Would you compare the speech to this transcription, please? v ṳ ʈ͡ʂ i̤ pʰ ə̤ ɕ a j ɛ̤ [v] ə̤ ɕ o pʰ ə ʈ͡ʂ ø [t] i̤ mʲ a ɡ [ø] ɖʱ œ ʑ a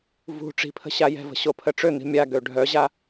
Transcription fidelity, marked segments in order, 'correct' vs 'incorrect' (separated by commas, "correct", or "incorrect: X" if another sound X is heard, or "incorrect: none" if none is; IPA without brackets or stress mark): correct, incorrect: n̪, correct